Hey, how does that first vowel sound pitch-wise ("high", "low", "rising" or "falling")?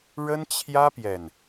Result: high